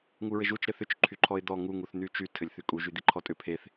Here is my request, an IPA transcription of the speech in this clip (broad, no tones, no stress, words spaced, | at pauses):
ŋuɹɘʒut͡ʃ ɾɘθʏt͡ʃ ǃʰyǃʰɔɪ̯d̪ɔ ŋu ŋuθn̪yt͡ʃy tʰɘlʲθykʼu ʒyd̪iǃʰɔtʼʏ pʰeθ